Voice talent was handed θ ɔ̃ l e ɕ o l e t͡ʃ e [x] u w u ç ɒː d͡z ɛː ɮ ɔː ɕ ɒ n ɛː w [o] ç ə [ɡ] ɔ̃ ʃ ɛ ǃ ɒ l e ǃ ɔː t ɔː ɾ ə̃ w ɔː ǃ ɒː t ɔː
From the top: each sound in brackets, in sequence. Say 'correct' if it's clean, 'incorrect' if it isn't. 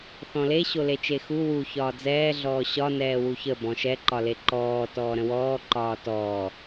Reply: correct, incorrect, incorrect

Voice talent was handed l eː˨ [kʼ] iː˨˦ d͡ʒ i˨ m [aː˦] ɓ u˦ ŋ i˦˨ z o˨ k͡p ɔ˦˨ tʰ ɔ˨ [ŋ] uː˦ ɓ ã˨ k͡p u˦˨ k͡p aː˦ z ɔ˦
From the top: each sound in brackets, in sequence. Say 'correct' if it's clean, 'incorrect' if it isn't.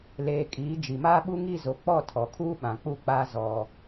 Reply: correct, correct, incorrect

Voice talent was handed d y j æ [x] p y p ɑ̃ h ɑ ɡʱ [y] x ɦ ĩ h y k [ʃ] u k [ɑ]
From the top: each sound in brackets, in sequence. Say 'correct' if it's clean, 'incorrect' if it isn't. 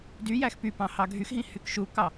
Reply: correct, correct, correct, correct

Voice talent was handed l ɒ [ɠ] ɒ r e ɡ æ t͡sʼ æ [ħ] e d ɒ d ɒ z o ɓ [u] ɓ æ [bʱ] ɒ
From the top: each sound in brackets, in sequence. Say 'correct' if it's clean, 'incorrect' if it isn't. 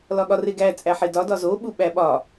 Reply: correct, correct, correct, incorrect

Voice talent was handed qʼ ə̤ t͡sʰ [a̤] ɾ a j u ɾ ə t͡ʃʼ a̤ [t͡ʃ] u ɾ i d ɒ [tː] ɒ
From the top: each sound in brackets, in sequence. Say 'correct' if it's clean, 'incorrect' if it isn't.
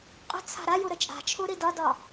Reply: correct, incorrect, incorrect

